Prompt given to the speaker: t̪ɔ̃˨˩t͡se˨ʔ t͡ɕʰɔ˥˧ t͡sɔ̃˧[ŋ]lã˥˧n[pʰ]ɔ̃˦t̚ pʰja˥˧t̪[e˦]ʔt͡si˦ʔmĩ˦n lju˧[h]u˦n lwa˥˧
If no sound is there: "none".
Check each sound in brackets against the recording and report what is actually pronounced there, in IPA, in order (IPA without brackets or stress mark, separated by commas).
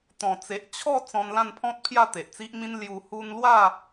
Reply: n, pʰ, e˨, h